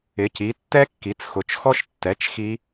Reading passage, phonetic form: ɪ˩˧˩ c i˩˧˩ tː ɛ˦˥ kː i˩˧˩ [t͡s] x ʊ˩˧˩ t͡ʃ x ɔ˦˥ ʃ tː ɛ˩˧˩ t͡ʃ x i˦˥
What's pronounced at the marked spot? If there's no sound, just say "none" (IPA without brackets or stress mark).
t͡s